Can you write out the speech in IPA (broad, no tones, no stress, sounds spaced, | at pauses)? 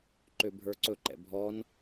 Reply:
ǃ ø bʱ ə˞ ǀ ɵ ǃ ɛ̰ bʱ ɔ n